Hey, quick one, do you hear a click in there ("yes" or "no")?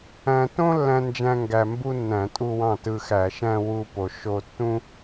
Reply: no